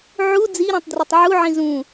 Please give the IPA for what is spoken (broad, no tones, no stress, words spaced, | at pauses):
ʕu d͡ziɾĩtˤdrɯtˤ ʕuʕĩ zũ